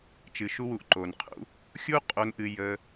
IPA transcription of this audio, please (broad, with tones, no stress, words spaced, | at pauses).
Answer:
t͡ʃɨ˨ʃu˧wu˨ʔ ǃo˨nqʰṵ˧ | xʲu˦ qʼo˧nʔɨ˧ jə˧